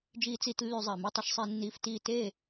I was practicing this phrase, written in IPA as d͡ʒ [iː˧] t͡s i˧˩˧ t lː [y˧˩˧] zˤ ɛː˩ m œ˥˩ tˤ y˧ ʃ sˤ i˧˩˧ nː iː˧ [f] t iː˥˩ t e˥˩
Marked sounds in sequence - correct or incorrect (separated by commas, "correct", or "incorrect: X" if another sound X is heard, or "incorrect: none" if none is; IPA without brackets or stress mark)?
correct, correct, correct